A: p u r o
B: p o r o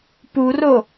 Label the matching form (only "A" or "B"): A